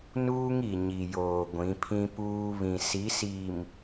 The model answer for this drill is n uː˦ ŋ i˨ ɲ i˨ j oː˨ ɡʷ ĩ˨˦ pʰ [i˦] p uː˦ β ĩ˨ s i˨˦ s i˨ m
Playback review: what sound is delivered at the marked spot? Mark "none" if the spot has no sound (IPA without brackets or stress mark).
ĩ˦